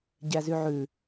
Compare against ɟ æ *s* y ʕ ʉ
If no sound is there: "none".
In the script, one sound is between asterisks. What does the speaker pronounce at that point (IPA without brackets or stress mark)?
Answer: z